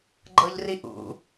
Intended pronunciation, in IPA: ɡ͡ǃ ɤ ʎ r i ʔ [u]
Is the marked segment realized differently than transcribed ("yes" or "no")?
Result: yes